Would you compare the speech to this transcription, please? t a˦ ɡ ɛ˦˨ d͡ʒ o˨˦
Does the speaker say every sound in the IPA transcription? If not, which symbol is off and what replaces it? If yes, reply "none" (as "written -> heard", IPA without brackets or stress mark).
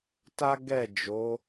none